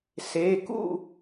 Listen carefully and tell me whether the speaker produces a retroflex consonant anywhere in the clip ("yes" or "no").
no